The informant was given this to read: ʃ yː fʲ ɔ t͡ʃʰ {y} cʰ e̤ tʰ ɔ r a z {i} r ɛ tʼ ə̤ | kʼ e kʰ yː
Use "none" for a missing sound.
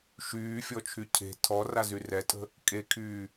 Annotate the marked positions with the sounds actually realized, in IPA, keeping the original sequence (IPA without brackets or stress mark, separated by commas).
y, y